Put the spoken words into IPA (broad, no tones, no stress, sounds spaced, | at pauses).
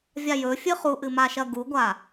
vʲ a j ɵ fʲ ɨ χ u ʔ ɨ m a ʃ ɐ ɡ u ɡʷ a